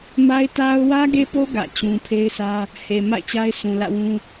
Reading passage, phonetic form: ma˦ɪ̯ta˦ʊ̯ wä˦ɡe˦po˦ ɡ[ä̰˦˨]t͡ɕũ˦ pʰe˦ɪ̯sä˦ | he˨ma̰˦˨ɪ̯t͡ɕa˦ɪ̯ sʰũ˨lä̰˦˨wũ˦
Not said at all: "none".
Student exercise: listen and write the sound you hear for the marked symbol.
ä̰˦˨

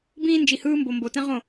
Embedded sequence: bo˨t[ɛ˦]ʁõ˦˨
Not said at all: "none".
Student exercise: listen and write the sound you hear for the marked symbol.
ɛ̃˦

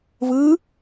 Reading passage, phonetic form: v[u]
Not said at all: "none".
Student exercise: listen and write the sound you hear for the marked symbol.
ɯ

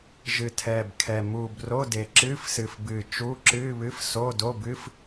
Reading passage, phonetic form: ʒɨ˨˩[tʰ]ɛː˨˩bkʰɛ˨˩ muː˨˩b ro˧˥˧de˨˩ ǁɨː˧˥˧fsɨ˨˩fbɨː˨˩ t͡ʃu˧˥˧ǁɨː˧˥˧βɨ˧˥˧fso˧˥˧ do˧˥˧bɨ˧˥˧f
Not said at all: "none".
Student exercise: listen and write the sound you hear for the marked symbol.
tʰ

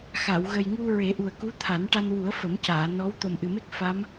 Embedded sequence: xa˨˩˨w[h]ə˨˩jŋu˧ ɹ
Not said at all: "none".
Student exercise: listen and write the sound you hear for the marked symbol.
ɣ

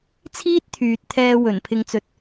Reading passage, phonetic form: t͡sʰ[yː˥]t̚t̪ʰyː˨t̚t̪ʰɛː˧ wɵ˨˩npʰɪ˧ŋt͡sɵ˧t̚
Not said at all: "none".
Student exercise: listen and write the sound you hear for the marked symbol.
iː˥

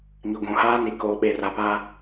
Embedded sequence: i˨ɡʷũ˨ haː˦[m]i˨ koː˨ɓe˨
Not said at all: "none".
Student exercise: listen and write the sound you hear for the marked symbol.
n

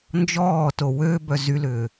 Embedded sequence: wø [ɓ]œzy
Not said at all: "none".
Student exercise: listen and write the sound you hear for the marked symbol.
b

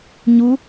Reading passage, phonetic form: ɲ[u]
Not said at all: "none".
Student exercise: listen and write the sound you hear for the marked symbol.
u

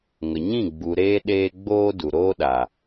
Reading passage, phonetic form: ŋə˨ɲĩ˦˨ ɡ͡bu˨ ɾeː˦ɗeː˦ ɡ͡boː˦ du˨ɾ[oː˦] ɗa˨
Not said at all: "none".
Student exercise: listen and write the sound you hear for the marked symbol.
oː˦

